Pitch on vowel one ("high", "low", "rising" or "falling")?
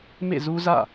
falling